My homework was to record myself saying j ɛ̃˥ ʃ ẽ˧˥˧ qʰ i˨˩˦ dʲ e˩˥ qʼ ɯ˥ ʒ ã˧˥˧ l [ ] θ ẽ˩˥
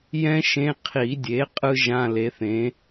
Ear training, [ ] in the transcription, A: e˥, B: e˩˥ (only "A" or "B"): B